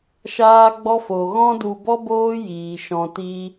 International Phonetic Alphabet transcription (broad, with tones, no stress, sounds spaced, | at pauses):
ʃ aː˦ ɡ͡b ɔ˦ f o˨ ɣ ɔ̃˦ d u˧ b ɔ˦ b oː˦ j iː˨ ʃ ɔ̃˨ t iː˧